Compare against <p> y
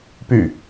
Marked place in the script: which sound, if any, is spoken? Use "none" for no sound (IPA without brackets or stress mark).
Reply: p